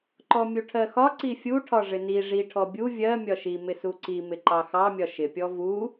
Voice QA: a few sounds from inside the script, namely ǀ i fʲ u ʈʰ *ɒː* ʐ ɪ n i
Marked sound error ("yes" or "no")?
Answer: yes